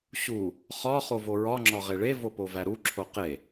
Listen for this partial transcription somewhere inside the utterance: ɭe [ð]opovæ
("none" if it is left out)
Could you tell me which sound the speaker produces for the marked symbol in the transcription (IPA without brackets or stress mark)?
v